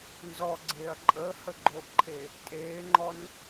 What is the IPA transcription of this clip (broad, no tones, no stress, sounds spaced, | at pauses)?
n z ɔ ɡ͡ǀ eː ɐ̯ ǃʼ əː h ə ɡ͡ǃ o ʔ ǃʰ e | tʼ eː ŋ͡ǃ ɔ n